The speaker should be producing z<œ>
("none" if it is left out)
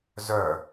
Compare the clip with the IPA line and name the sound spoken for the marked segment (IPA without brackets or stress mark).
œ